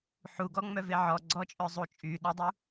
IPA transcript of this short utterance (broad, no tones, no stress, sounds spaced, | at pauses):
ħ u ɡ ɔ ŋ͡m œ v e ʕ ɔ ɡ͡ǀ ɔ t͡ʃʼ œ zˤ u t͡ʃʼ y ɗ ɔ dˤ u